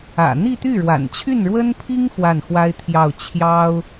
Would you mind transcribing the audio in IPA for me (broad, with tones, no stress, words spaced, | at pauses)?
ä̰˨˩ n̪i˥˧t̪y˥˩ɻwa̰˨˩n t͡ɕʰy˥˩nɻwə˥npʰi˥ŋ xwa˥˩nxwa˥ɪ̯t̪ʰjɑ˥˩ʊ̯ t͡ɕʰjɑ˥ʊ̯